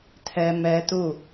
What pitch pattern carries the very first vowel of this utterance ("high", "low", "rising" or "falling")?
high